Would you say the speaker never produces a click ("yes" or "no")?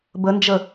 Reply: yes